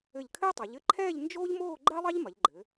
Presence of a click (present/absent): present